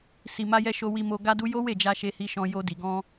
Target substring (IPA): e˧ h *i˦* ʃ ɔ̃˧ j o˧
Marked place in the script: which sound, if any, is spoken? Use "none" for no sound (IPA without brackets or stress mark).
i˧